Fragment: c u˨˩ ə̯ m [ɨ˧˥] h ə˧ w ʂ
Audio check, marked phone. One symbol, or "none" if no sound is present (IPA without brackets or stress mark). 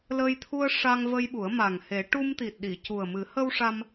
ɨ˨˩˦